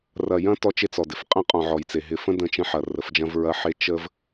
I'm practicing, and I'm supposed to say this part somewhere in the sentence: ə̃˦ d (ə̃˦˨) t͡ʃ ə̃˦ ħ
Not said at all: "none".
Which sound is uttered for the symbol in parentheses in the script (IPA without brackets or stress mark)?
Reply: ə̃˦˨